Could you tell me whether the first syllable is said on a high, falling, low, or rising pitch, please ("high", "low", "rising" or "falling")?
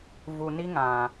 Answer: low